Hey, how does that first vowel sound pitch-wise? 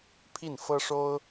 falling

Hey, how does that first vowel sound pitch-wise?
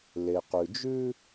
low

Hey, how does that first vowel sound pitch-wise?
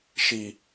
low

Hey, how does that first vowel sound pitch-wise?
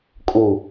low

